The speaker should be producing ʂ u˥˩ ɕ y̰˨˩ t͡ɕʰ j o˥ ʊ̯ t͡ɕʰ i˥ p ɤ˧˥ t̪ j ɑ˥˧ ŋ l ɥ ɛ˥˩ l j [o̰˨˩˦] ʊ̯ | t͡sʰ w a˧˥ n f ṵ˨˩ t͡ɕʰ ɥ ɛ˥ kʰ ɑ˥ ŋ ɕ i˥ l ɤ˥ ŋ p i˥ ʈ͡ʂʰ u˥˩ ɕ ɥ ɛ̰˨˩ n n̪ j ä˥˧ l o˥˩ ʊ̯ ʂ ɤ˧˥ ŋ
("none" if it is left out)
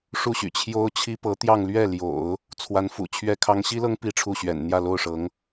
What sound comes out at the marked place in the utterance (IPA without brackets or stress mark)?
o̰˨˩˦